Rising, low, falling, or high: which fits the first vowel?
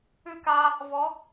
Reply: falling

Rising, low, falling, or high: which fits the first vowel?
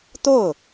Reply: falling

